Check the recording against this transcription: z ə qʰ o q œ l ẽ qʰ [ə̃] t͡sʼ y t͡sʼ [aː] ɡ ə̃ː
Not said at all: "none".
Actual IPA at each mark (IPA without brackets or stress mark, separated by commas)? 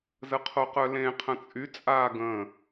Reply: ə̃, aː